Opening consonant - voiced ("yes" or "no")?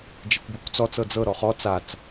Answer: yes